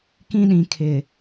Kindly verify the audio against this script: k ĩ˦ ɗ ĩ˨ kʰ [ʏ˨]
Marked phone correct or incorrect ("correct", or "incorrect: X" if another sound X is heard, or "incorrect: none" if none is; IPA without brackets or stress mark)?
incorrect: ɪ˨